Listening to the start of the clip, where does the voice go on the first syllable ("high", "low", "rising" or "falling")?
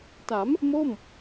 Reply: rising